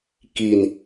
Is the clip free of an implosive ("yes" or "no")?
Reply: yes